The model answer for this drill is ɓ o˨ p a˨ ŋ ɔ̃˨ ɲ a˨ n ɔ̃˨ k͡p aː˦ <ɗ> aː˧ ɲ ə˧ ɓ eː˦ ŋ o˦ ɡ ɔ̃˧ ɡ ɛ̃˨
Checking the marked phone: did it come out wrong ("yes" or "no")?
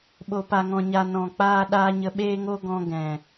no